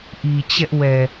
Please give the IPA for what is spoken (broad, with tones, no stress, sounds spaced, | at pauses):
ʔ i˨ t͡ɕ ɛ˦ ʔ w ɛ˨